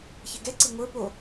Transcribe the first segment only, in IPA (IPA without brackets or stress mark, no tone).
ç